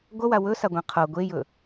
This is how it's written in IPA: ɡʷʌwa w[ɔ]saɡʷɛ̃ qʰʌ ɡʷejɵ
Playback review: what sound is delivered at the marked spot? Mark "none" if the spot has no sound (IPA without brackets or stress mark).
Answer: ɵ